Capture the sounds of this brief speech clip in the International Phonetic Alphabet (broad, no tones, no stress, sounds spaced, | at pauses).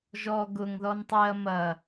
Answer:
ʒ ɔ ɡ ʊ ŋ ð ɔ n tˤ e ɐ̯ m ɐ